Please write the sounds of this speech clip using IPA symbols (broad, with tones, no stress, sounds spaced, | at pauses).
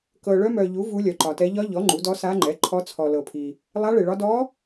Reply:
k ɤ˨ ɭ œ˧˥ m œ˨ ʎ u˩˥ v u˧˥ lʲ œ˨ ǃ ɒ˨ t ɛ˧˥ ʎ ɒ˧˥ ʎ ɔ˩˥ ŋ͡ǃ u˩˥ d ɔ˧˥ s a˧˥ ŋ͡ǃ ɛ˩˥ ǃʰ ɔ˧˥ t͡sʰ ɔ˨ l ɤ˨ pʰ i˨ | lˠ a˧˥ ɭ e˨ ɭ ɒ˧˥ d ɔ˧˥